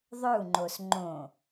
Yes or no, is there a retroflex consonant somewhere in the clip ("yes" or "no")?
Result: no